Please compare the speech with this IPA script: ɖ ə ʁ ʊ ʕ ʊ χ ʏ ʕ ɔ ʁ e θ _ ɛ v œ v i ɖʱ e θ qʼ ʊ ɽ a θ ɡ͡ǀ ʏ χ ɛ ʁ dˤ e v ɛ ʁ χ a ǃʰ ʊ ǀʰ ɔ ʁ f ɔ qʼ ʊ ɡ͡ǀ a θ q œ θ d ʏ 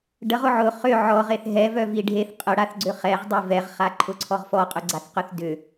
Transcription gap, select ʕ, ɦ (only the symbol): ɦ